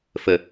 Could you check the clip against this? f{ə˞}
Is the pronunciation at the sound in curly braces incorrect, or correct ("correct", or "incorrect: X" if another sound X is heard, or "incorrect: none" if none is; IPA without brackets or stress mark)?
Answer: incorrect: ə